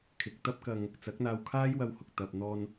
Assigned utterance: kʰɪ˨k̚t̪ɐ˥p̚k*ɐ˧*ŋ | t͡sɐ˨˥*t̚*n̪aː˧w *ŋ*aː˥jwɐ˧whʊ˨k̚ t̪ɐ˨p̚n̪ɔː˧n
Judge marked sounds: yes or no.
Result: yes, no, no

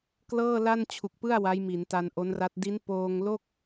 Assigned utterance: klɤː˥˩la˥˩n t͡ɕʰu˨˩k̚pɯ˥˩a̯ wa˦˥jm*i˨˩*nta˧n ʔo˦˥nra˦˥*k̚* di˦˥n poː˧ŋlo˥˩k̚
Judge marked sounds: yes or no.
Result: no, no

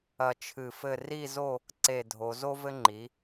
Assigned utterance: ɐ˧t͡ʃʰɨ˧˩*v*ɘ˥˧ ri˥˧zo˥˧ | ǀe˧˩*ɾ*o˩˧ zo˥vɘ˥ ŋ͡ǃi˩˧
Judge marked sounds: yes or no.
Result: no, no

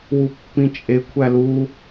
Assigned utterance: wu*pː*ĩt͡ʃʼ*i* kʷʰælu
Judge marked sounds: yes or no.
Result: yes, no

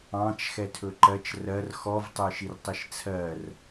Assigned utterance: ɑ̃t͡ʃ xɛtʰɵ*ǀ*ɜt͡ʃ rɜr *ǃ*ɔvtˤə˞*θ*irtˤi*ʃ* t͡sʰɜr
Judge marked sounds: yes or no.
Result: no, no, no, yes

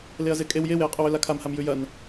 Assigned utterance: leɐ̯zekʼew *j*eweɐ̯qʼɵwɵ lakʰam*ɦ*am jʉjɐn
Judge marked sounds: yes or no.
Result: yes, no

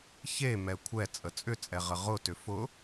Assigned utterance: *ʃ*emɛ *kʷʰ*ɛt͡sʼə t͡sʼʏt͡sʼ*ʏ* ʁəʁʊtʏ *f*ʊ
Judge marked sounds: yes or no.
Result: no, yes, no, yes

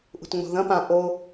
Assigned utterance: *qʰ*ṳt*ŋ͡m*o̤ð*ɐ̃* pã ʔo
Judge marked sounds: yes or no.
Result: no, yes, yes

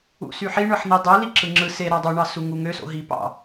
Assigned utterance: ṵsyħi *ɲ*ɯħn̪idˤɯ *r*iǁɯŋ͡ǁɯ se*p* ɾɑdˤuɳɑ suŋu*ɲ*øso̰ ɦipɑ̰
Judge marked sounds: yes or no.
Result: no, no, no, no

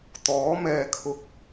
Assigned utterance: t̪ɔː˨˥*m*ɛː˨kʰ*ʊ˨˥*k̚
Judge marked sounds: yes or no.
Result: yes, no

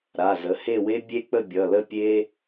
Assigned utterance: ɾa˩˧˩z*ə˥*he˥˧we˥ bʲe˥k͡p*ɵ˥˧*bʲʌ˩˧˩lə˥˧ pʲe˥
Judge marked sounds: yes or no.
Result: no, no

